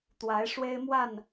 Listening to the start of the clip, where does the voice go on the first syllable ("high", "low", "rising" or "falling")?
rising